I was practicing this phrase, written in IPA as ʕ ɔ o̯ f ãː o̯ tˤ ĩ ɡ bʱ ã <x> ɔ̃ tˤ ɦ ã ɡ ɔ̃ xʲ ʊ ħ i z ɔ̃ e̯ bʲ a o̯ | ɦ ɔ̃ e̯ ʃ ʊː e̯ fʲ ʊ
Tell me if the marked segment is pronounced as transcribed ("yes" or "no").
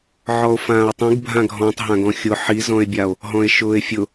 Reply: no